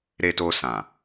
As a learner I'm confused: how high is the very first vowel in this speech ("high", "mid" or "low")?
mid